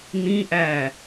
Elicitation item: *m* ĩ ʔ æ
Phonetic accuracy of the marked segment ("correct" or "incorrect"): incorrect